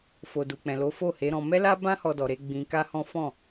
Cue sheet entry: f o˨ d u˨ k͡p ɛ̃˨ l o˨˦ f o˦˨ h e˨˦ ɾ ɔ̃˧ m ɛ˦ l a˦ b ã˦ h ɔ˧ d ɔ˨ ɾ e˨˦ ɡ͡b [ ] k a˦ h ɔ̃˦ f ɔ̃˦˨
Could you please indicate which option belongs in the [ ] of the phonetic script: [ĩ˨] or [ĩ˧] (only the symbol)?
ĩ˧